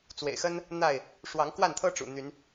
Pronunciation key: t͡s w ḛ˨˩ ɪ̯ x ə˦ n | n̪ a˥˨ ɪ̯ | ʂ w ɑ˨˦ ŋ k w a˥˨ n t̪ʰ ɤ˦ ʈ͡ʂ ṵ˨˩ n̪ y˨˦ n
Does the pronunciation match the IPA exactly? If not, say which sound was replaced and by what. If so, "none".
none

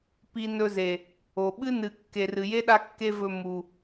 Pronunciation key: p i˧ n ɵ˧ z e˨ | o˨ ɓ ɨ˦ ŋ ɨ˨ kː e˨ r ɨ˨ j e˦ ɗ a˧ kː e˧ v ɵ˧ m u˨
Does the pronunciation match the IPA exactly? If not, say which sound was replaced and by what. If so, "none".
ŋ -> n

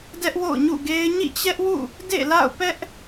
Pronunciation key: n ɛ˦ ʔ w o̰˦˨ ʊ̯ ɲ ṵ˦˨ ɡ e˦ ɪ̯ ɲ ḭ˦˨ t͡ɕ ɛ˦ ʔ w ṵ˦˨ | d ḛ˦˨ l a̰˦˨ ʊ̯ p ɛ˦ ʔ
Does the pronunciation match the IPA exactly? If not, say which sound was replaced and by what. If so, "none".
n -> d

